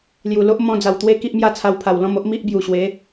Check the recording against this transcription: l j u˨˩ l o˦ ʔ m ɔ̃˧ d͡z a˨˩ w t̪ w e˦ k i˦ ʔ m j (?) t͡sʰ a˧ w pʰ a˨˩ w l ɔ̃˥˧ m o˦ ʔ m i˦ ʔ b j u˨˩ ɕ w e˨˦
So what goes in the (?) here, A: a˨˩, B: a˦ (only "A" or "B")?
B